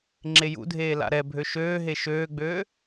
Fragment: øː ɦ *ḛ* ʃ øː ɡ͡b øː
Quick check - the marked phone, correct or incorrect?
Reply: incorrect